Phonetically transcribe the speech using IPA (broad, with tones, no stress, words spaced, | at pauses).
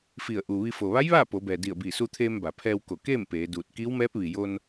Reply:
fi˧˩ə̯ʔu˩ ʋi˧ fo˩ʋa˧˥jʋaː˥˨ po˩˧bɛː˩di˧˩ə̯biː˧˩ su˧t̪ʰeː˧mba˩pʰɛː˧w ko˧˩keː˥˨m peː˩˧duː˧˩t̚ kiː˧˥wmɛː˧˥p̚ ʋi˩jo˧n